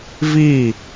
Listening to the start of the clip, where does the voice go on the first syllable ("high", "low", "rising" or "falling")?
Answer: falling